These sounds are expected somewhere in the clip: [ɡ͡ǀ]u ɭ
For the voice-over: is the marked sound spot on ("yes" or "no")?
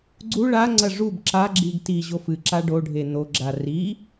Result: yes